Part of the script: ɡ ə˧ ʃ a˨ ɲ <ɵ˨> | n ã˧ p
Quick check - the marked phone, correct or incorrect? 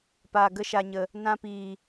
incorrect